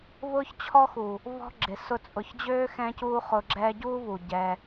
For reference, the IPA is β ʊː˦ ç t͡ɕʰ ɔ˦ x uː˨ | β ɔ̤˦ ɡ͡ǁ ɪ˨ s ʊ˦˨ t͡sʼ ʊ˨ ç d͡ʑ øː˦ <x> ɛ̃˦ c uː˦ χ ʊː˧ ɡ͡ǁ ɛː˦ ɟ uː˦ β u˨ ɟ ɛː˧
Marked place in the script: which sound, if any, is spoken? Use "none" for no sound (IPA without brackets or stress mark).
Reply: x